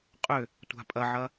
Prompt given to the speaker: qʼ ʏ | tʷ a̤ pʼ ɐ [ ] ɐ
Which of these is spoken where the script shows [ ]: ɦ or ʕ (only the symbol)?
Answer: ʕ